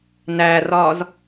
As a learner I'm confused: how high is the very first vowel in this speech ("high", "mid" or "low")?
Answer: low